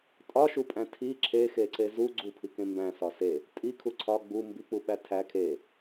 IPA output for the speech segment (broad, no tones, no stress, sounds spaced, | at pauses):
tʼ ɒ ʃ u pʼ æ̃ tʰ i ǁʰ e x e ǀ e z u ɡ͡ǀ u pʰ i k ẽ m b æ̃ s ɒ s e | tʼ i kʰ u ǀʰ ɒ ɡ͡b u m b i k͡p u ɓ æ tʰ æ kʰ e